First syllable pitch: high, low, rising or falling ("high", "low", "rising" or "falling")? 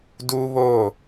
high